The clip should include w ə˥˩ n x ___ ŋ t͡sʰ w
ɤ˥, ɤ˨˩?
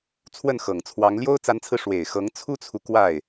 ɤ˨˩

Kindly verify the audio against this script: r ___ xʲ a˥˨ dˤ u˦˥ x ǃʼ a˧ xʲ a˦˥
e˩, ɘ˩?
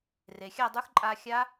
e˩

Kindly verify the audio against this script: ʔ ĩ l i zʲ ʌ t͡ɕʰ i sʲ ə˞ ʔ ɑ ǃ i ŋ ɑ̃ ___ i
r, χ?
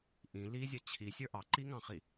χ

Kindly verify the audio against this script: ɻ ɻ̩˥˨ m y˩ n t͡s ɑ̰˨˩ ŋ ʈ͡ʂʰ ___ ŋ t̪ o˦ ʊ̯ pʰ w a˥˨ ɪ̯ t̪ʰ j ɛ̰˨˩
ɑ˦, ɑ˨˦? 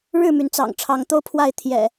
ɑ˨˦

